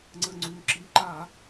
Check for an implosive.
absent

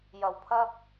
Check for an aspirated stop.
present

